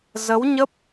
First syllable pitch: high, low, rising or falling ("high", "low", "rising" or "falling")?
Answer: rising